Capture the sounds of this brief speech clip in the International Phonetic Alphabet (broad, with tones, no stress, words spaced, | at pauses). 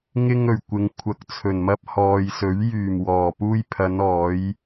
ŋɪ˧ŋɵ˨˩ɥ kʷɪ˨ŋkʷʰɐ˨k̚t͡sʰɵ˨˩nmɐ˧p̚ hɔː˨jsɵ˨˥ɥ jyː˨˩mwɔː˨˩puː˧j pʰɐ˨˧nɔː˨˧j